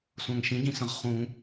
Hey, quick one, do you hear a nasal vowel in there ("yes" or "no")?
yes